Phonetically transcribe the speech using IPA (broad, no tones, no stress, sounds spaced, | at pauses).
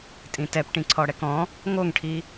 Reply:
tʼ ĩ t ɛ p ʈ ĩ ǀʰ ɔ ɽ ɛ k ɔ̃ | ŋ o ŋ ʈʰ i